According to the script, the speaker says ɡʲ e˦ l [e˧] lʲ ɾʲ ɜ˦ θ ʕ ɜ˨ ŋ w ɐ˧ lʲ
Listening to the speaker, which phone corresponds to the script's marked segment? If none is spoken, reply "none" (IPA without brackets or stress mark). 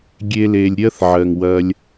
e˧